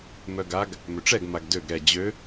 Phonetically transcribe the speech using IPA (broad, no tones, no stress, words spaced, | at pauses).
mœɡaɡ | møʈ͡ʂɛɡ maɡdøɡ ɾɛ d͡ʑø